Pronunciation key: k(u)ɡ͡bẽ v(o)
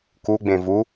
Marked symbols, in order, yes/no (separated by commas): yes, no